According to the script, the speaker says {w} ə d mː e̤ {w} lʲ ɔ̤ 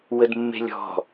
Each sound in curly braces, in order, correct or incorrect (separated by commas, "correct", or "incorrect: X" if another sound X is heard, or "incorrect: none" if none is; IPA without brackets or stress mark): correct, incorrect: none